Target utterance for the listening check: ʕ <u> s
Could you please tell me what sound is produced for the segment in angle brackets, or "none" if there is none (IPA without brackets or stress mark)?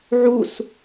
u